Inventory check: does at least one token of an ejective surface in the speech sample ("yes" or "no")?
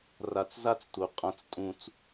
yes